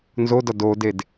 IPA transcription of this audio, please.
n z o d ɒ d o d e d

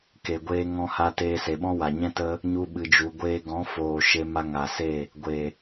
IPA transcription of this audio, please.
k e˨ ɡʷ eː˧ ŋ ɔ̃˧ h a˧ t eː˧ s e˨ ɓ ɔ̃˦ w a˨ ɲ ɛ̃˦ t ə˦ | ɲ u˦ ɓ ɨ˧ d͡ʒ u˧ ɡʷ eː˦ ɡ ɔ̃˨˦ f oː˨ ʃ e˧ m a˧ ŋ a˨ s e˦˨ | ɡʷ e˨

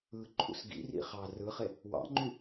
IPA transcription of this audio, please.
ɯ ǃʰ ṵ s ɡ ḭ r ḭ χ ɑ r ɯ χ e | w ɑ̰ ŋ͡ǃ y

